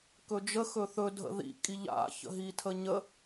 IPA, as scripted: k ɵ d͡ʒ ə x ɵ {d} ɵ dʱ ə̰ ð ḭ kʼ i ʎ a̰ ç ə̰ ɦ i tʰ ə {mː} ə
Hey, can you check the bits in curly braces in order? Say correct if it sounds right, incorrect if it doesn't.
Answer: incorrect: θ, incorrect: ɲ

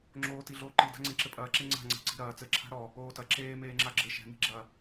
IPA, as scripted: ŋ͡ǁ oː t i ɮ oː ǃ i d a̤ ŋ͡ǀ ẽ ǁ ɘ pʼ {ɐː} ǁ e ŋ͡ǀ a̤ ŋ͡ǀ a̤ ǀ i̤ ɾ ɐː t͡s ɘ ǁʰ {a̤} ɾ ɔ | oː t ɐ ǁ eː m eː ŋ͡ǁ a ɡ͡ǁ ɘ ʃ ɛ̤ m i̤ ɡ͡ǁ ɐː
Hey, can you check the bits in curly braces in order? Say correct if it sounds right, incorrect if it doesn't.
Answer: correct, correct

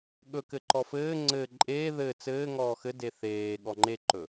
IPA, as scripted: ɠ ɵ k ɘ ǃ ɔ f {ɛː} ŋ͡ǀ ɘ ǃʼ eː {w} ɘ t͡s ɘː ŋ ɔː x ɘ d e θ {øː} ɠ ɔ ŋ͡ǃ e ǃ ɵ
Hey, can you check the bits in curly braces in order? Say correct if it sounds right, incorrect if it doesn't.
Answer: incorrect: ɘː, incorrect: ð, incorrect: eː

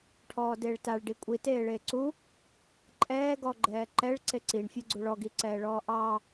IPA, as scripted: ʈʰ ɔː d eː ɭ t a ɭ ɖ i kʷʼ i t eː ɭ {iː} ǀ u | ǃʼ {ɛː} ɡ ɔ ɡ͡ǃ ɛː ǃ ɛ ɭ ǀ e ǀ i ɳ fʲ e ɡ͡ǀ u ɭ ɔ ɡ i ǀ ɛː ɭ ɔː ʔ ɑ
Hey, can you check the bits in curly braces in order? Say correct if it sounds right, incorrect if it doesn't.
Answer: incorrect: eː, correct

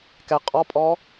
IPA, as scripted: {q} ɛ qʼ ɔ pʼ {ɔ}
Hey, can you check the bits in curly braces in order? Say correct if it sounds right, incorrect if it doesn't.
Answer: incorrect: k, correct

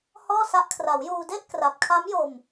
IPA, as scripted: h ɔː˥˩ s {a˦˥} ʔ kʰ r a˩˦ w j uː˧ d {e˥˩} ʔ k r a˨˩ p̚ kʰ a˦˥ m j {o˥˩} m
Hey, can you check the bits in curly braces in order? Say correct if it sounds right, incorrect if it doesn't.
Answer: correct, correct, incorrect: o˧

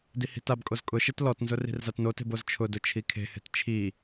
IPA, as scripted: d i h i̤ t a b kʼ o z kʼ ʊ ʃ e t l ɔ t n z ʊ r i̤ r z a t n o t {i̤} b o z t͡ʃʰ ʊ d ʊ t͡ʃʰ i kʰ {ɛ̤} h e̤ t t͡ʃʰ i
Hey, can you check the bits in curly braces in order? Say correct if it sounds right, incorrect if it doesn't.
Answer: incorrect: e̤, incorrect: e̤

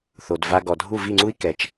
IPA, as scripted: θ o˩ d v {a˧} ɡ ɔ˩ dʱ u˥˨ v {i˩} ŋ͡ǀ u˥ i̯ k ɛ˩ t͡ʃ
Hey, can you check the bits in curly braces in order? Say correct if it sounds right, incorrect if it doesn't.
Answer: correct, incorrect: i˥˨

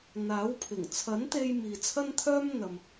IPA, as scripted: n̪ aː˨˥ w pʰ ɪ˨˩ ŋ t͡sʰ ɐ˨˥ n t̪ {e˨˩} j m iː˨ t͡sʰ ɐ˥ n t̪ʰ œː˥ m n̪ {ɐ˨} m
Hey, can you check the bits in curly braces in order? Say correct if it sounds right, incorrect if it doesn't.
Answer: incorrect: e˧, correct

